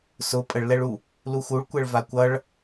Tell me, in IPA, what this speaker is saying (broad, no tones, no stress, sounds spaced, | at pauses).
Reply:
s ʊ pʼ ə ɭ l ɛ ɭ u | l u x u ɭ kʷ ɛ ɭ v a kʷ ʌ ɭ